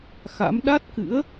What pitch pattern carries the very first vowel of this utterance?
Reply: rising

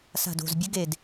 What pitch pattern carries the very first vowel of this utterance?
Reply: low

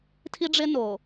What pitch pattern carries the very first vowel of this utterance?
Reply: high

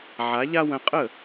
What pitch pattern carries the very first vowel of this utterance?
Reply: rising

